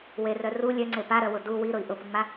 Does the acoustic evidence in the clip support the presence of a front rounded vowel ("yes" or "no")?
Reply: yes